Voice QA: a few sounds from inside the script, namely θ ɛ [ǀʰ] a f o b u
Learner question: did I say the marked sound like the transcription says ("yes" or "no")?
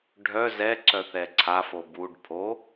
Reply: yes